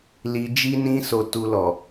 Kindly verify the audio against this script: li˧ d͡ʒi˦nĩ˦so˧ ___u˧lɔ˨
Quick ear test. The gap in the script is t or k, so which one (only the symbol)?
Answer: t